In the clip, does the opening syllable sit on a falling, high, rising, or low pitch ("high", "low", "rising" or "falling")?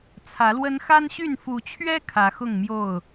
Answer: rising